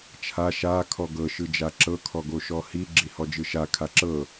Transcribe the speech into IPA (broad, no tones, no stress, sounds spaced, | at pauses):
t͡ʃʰ a ʃ a kʰ ɔ ɡ ɤ ʃ ɯ d͡ʒ a ǁ ɤ kʰ ɔ ɡ o ʃ ɔ h i ɡ͡ǁ i h ɔ d͡ʒ ɯ ʃ a kʰ a ǁ ɤ